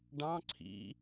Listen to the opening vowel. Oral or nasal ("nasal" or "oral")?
nasal